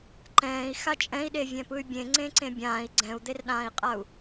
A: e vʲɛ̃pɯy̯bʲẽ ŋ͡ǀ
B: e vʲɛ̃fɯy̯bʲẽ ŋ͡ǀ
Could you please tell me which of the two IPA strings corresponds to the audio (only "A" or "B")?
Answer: A